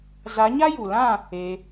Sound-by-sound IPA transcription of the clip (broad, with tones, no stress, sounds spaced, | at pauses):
z a˨˦ ɲ a˦ j u˨ l ã˦˨ | e˧